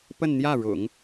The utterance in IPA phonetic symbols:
p ə˥˧ n n̪ j ä˥˩ ɻ ʊ̰˨˩˦ ŋ

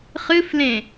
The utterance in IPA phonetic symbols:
χ ɨ f l ẽ

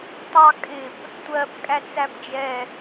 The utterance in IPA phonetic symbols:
tˤ ɑ kʼ ɪ p | tʷ ɜ p kʼ æ t͡s æ p d͡ʒ ɛ

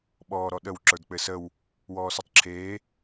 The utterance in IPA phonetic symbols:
ɓ ɔː ɾ ɔ ɗ ə w ǁ ə˞ d k͡p ɘ s ə w | w ɔː s ɔ tˤ ǁʰ eː

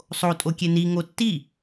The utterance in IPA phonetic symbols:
sˤ o tʼ o kʲ e n i ŋ o tː i

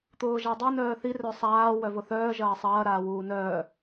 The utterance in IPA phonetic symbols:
t̪ ʊː ʒ a dˤ ʊ n œː θ i r œ sˤ aː w œ v ʊ θ œː ʒ ɐː sˤ ɐː ɾ aː w uː n œː

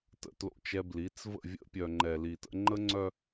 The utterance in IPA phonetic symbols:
t ə̰˨ t l o̰˦˨ t͡ʃ ɛ˦ b l i˨˦ t͡s v ə̰˦˨ vʲ ə̰˦ pʲ œ˨ ŋ͡ǃ ɛ˨ l i˨ t ə̰˦ ŋ͡ǃ ə˦ ŋ͡ǀ œ˦

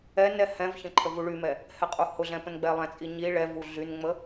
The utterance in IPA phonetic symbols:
ɛ n ɛ h ɛ̃ v ç ə̃ ǃʰ ə v u ɭ y m ɛ | h ɛ qʼ u h ʊ ɮ ɛ̃ p ə̃ n ɡ͡b ɛ lˠ ɛ̃ t͡sʼ i ɲ i ɭ ɛ v u ɮ y n ŋ͡m ə

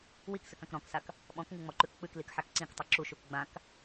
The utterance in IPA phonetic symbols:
w i k s ɨ k ã k ɾ ɔ̃ k s a k | ɓ ɔ̃ k ŋ ɨ ŋ͡m ɔ ǃ ʉ k k͡p ɨ k l i k ħ a k ǀ ĩ k tˤ ɨ ǁ u ʃ u k ɡ͡b ã k

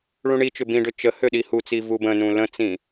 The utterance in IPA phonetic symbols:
ɭ ũ ɳ i t͡ʃ ʏ b ĩ ɖ ø t͡ʃ ə h ø ɗ i h u t͡s i v u b ə̃ n ũ l ə̃ t͡s ĩ

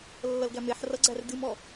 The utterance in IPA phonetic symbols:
lː ʌ l ɡ æ m e ħ r ʌ ɡ͡ǀ æ r d ɨ m ɔ

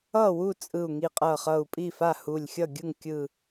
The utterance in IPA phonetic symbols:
ʌ˥˩ w u˥˩ t͡sʼ ɯ˧˩ u̯ ŋ i˧˩ qʼ ʌ˧˩ χ ʌ˧˩ u̯ pʼ i˥˩ f a˥˩ h u˧˩ lʲ xʲ ʌ˥˩ ɡʲ ɯ˥˩ ŋ kʲ ɯ˧˩

